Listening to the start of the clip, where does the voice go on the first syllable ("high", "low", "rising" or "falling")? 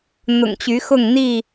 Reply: low